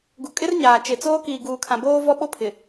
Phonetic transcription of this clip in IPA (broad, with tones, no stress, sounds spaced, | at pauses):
ɡ u˨ kʼ ɪ˦ r ɲ aː˨ t͡ʃ e˨ t͡s oː˦ k iː˨ ɡ uː˨ kʰ ã˨ b oː˦ v ɔ˦ ɓ o˦ pʰ ɪ˨